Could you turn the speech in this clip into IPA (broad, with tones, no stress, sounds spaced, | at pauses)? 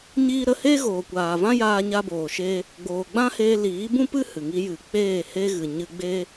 ɲ iː˦ ɾ ə˦ h eː˦ ɣ oː˨ kʷ aː˨ v ã˦ j aː˦ ɲ a˦ b oː˨ ʃ eː˦ | ɡ͡b oː˨ ɡ͡b ã˦ h eː˧ l iː˨˦ b ũ˦ p ɨ˦ h ɨ˨ ŋ i˦ j ɨ˧ k͡p eː˦˨ h e˦ ɣ ɨ˨ ɲ ɨ˧ ɡ͡b eː˦